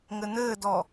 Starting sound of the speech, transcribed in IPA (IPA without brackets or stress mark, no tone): ŋ